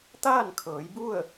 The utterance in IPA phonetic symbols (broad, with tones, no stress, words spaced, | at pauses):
t̪aː˥˨nkʰɤː˩˧jbu˥˨ə̯